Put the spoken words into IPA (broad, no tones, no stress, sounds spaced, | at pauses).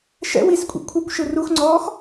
ʃ ɛ̰ w i s kʷʼ ḭ kʷʰ ɯ kʷ ʃ ɯ r u x ŋ͡ǀ ɔː x